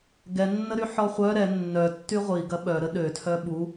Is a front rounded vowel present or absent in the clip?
present